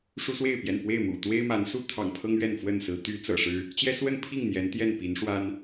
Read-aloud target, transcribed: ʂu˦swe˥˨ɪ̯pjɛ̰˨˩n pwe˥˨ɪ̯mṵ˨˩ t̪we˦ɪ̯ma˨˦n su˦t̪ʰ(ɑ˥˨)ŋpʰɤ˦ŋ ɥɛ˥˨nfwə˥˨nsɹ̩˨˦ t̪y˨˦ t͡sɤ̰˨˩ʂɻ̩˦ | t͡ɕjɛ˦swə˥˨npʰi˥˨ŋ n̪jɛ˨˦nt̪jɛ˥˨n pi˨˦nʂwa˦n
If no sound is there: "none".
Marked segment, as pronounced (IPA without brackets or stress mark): ɑ̰˨˩